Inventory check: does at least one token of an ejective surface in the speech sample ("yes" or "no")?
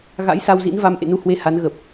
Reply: no